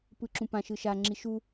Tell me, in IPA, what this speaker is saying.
pɯǁũpã ʃɯʃa ŋ͡ǁiʃu

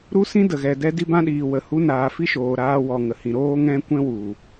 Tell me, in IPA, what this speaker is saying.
ɾu˦sĩ˦də˨ɣɛ˨ dɛ˦di˦bã˦ɗiː˨ wə˨hu˧naː˨ fi˦ʃoː˨ ɾaː˧ wɔ˨ŋə˨hĩ˨ ɾoː˦ŋɛ̃˦ kʷɛ̃˦wu˨

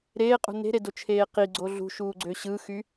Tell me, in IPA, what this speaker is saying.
ɾeːqʼṳ ne̤ɾedot͡ʃʰeː qiɡ͡ǀo ɮṳʃuːɡ͡ǀø ɕɯxy

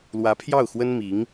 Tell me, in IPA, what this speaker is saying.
lwä˧˥pʰjɑ˥˩ʊ̯xwə˥n mi˧˥ŋ

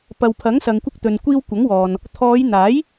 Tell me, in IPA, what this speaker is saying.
pɐ˨wpʰɐ˨˥ŋsɐ˨ŋ kʷɪ˧k̚t̪ɵ˨nkʷiː˧w kʷɐ˨˥ŋwɔː˨n | t̪ʰɔː˨˧jn̪aː˨˥j

